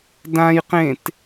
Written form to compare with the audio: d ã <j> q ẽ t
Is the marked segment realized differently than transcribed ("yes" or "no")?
no